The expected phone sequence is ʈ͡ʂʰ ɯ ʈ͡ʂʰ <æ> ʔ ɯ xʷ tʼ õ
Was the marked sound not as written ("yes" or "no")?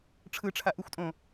yes